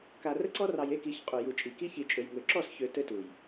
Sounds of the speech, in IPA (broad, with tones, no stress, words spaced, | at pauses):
ka˨rə˦ǀɔ˦rɑ˨j e˦ki˨˦çqʼu˨ ju˨t͡ʃʼi˨ ki˦çi˨t͡ʃʼø˨j ŋø˨ǁɔ˦˨sçø˨ tɘ˦tu˨j